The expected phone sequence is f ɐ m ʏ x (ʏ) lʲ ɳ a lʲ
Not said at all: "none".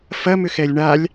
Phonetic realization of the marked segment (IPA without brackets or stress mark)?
ɛ